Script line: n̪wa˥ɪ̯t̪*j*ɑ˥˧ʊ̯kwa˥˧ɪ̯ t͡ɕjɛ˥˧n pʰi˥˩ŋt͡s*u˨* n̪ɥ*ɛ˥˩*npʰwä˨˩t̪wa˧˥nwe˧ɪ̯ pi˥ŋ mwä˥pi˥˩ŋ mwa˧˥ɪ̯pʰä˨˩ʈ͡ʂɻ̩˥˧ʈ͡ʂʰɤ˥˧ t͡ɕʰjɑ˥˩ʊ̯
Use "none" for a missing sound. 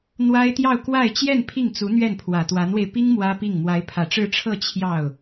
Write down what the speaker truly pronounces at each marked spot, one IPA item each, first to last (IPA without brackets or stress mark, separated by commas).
j, u˧˥, ɛ˥˩